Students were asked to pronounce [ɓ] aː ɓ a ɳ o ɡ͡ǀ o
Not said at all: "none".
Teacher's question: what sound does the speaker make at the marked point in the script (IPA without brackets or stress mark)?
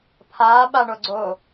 pʰ